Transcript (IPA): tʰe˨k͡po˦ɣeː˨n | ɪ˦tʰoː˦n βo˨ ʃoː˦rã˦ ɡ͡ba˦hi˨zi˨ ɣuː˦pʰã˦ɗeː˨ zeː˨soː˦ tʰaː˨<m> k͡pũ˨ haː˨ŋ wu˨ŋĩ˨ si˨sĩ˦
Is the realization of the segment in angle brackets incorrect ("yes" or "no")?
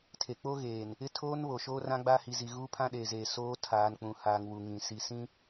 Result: yes